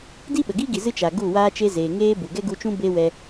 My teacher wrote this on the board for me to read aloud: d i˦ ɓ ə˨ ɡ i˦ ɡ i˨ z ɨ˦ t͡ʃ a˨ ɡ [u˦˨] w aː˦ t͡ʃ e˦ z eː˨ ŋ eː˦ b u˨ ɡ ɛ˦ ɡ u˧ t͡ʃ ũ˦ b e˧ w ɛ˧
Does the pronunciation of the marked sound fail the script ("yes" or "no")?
no